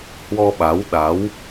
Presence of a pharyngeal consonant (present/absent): absent